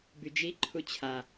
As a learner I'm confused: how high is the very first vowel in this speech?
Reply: high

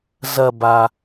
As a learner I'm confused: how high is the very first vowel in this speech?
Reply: low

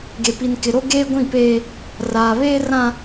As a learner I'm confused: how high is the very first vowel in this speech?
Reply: mid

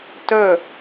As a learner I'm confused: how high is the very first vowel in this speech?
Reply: mid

